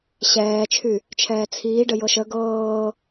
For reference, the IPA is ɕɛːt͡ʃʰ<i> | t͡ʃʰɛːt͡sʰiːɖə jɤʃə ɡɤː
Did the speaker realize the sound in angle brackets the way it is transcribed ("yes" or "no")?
no